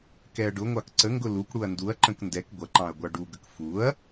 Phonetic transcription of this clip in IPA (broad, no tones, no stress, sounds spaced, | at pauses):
k ɛ ɐ̯ ɖ ʊ ŋʷ ɑ k ǀ ə ŋ ɡ ʊ l u k ɽ u ɐ̯ n d u ɐ̯ ǃ ə̃ k n d ɛ k ɡʷ ʌ ǃ ɑ̃ ɐ̯ ɡʷ ɑ ɖ u ɡ ə k f u ɐ̯